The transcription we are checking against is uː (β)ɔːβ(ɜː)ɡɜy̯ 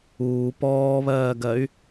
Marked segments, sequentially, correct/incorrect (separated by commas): incorrect, correct